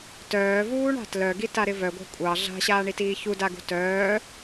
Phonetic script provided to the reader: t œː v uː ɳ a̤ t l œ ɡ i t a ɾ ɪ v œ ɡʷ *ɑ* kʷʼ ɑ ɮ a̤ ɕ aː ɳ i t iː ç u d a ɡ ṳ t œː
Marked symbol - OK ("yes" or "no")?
no